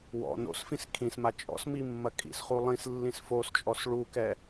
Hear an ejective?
yes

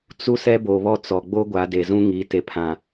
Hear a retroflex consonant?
no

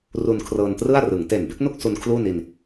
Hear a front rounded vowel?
no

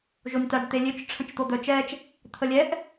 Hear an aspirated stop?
yes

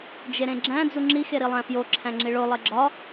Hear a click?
yes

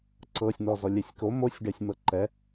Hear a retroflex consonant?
yes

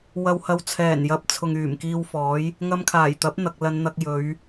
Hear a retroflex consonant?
no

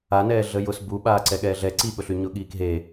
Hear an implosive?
yes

